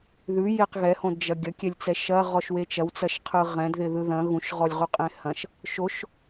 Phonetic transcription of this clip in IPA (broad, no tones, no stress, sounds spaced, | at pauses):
ð ʉ j e q ɣ ɛ h õ d d͡ʒ ɐ ɡʲ ɐ kʲ ɛ lʲ t͡s ɛ ʃ ɐ ʁ ɔ ʃ w e t͡ʃ ɐ w t͡s ɐ ʃ qʰ ɯ ʁ ɛ̃ d ð ɪ ð ɯ ð ɐ̃ ɣ ũ ʃ ʁ ɔ lʲ ʁ u qʼ ẽ h ɐ̃ ʃ | ʃ o ʃ